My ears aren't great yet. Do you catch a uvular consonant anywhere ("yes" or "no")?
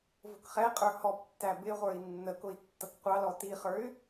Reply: yes